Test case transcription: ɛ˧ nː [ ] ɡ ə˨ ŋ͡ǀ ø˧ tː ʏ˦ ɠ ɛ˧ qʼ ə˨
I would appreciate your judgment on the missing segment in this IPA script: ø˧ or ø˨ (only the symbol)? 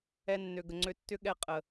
ø˨